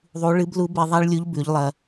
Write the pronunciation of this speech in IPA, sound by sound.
ðˤu˧˥ ɭɨ˧˥blu˧˥be˧ ðˤa˥ɭlʲu˧˥ʎ bʉ˩˧ʎlˠɐ˧

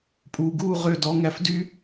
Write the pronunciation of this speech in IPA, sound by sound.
pʼuː˨ɡuː˦˨ ʁø˦˨dɔ˧ ŋæ˧fdy˦

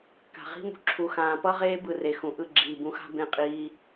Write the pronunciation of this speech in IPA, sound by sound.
ka̤˨ʁi̤˦mṳ˧ ǁʰu˧xãː˧ pʌ˦ʁeː˦ bɯ˧re˨xũ˨ʔɯ˦˨ ɡ͡ǁiː˨bũ˧xa̤˦ bẽ˧qʼiː˧

